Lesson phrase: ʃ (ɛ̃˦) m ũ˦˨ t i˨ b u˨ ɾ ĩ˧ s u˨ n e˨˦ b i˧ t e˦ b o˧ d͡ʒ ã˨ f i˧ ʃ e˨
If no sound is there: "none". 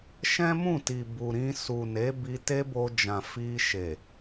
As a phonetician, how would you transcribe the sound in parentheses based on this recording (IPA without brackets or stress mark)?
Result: ɛ̃˦